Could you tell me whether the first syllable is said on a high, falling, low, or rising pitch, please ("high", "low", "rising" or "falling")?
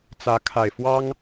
rising